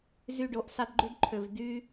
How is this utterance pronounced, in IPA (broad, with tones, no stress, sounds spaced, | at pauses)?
z y˨ ɖ o˨ ʔ s ɑ˧ d ɡ͡ǃ y˧ d ǃʰ ø˨ v d y˦